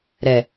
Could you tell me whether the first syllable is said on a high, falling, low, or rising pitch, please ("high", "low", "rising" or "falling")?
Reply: low